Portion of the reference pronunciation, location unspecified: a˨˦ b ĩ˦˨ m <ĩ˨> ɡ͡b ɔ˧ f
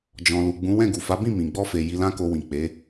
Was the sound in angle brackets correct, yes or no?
yes